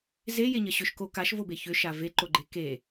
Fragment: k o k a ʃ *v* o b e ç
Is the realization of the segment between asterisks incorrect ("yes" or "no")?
no